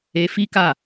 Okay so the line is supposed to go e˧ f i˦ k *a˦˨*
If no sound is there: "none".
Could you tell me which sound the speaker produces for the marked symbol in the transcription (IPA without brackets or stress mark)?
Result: a˦˨